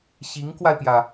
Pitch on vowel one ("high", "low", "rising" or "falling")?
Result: rising